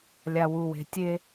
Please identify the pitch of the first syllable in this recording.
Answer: low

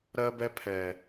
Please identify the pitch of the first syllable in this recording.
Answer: high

